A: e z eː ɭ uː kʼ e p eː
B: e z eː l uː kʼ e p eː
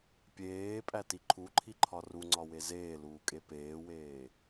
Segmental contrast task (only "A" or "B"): B